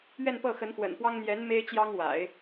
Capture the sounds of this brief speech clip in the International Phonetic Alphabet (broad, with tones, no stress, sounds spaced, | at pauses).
ɥ ɛ˥˧ n p ɤ˥˩ x ə˧˥ n x w ə̰˨˩ n p w ɑ˥ ŋ n̪ j ɛ˧˥ n m e˥ ɪ̯ t͡ɕ j ɑ˥ ŋ w a̰˨˩˦ ɪ̯